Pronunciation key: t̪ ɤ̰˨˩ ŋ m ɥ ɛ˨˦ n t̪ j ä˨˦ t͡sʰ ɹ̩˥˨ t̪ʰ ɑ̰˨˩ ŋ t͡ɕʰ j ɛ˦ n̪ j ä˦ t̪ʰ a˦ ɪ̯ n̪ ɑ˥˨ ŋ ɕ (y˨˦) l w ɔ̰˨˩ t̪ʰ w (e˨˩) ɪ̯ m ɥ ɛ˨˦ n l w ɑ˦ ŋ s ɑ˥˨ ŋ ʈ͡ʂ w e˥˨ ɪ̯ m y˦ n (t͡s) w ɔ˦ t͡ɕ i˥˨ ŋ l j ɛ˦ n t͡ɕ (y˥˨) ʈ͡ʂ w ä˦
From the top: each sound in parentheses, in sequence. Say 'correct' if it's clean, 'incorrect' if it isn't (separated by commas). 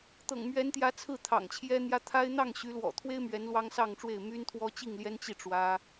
correct, incorrect, incorrect, incorrect